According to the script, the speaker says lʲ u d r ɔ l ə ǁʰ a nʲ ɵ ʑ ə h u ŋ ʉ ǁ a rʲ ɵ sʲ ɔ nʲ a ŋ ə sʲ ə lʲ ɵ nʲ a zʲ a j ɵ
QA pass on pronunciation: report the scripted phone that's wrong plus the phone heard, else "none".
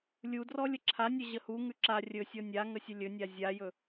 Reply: l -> lʲ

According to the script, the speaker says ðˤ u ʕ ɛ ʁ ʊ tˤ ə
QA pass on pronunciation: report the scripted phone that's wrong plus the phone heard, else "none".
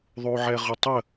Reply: none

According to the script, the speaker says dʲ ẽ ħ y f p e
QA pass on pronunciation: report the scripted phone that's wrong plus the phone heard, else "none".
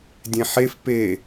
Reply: y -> e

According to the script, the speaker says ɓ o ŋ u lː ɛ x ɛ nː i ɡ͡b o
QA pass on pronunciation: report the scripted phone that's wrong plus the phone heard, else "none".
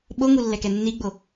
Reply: x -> k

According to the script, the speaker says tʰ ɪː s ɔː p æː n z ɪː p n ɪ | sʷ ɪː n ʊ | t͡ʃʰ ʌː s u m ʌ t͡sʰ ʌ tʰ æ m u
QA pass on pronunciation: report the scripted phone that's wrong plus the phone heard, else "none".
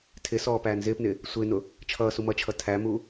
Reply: t͡sʰ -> t͡ʃʰ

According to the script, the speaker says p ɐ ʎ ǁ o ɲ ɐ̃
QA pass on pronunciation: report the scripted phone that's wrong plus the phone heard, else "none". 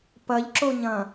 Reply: none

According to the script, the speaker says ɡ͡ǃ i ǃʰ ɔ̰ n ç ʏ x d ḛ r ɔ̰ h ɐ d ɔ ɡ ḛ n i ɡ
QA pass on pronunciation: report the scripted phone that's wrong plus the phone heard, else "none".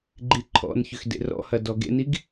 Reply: none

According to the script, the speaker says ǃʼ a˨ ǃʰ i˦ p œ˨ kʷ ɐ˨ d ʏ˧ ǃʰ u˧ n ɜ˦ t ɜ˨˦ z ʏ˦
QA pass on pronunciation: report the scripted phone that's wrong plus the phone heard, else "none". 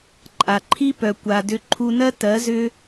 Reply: ɐ˨ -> a˨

